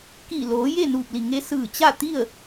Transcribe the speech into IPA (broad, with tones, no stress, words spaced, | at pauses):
ki˧˩loː˩˧ je˥˨nuː˧˩p̚li˧˩ ŋe˧ sɯː˧˩t͡ɕa˥˨t̪i˥˨ə̯